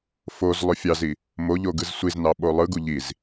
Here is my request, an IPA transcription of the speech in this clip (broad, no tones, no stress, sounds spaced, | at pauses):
f o z lˠ ø fʲ ɑ z i | m o ʎ o ɡ ɯ z sʷ i z n ɑ ɓ o lˠ ɯ ɡ u ʎ i z